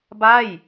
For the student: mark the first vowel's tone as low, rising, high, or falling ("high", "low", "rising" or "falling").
falling